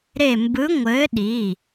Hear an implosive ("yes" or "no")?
yes